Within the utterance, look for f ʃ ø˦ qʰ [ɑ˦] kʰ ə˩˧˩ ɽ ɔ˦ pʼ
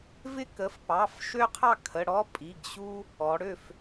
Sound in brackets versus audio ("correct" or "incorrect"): incorrect